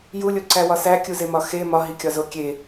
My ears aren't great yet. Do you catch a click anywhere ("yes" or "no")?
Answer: yes